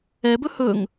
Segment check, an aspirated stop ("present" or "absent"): absent